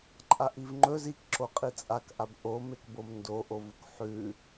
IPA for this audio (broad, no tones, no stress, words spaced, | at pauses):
ǃʼaʔivŋ͡ǃɵz ikǁo qʼit͡sʼakʔab ʔomekbom ndoʔovuk ħʉ